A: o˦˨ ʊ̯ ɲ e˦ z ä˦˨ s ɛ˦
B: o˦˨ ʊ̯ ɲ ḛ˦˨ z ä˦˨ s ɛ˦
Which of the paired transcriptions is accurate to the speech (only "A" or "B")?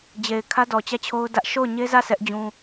A